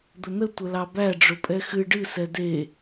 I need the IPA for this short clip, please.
d̪ʊnə tʷəlɑbæ ɖ͡ʐʊpʼɛxɨ ɖɨ sɛde

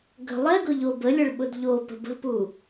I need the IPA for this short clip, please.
ɡə̤ lˠɛɡʊ ʎobəlʲəɭɓʊd ʎopə̤ bə̤pu

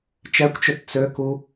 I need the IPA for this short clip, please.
t͡ʃɛkʷt͡ʃøt t͡søku

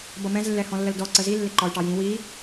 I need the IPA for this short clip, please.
bʌmɛ̃z lːɛhɔ̃lːəldɔ ǀəzilːɪ ǃɒy̯ʈɑjĩ wi

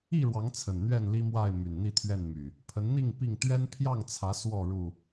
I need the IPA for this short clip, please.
i˥˨ɻwɑ˨˦ŋ t͡sʰə˨˩nn̪ɥɛ˥˨nli˦mwa˥˨ɪ̯ my˨˩nn̪i˥˨t̪ʰɥɛ˥˨nmy˨˩ | pʰə˨˦nn̪i˥˨ŋ pi˥˨ŋ t̪ɥɛ˦npʰjɑ˥˨ŋt͡sʰä˨˦ swɔ˥˨ ɻu˥˨

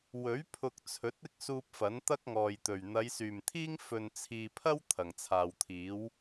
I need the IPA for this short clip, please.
wɵ˨˥ɥ pʰʊ˧k̚t͡sʰɵ˨˥t̚ ɪ˥k̚suː˧p̚ fɐ˨˥nt̪ɐ˥k̚ŋɔː˨jt̪ɵ˨˩ɥ n̪ɐ˨˧jsyː˨˩mt̪ʰiː˥ŋ fɵ˨nt͡sʰiː˨pʰɐ˥w t̪ʰɐ˨˩ŋt͡sʰaː˨wt̪ʰiː˨˥w

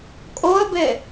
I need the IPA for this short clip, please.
kʼoə̯be

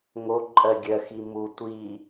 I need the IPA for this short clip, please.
ŋoǃʼɜ ɡʲɜxi mu tʷi

